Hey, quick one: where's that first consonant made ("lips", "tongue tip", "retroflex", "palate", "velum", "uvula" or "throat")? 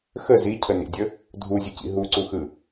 velum